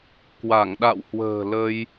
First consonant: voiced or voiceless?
voiceless